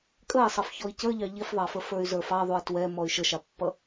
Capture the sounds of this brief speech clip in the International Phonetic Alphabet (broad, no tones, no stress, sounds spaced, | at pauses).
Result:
kʼ ə i̯ sˤ ʌ f ç ɔ i̯ c ə˞ ʎ ɑ ʎ i f ðˤ ɑ f ə f ə˞ y̯ z ə˞ f ɑ ðˤ u i̯ t w ɛ m ɔ y̯ ʃ ə ʃ ɑ pː ʌ